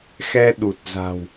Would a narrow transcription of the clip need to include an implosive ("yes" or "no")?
yes